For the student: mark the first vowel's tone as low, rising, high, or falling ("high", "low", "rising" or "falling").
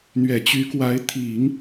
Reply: low